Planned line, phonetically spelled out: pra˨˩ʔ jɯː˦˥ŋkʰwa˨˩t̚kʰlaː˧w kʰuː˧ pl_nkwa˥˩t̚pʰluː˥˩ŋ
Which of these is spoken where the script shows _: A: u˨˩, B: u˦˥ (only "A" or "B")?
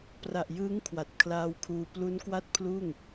B